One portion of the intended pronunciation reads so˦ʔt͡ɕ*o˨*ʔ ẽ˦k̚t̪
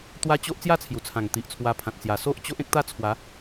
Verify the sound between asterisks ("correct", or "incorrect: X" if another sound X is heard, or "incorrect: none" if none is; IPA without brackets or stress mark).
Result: incorrect: o˦